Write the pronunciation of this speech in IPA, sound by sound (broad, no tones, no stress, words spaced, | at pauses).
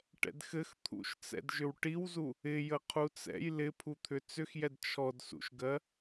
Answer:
ʈɛ̰dxɘx t̪ʰṵʃt͡sɛ̰dʒʏw ʈiwzu | ɪjə qʰut͡sɛ̰j lɪpʰut̪ʰʏ t͡sʏxjɛd t͡ʃʰɔdsṵʃɡɜ